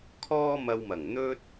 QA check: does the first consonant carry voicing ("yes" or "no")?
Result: no